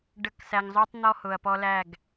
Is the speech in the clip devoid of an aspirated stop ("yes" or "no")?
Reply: yes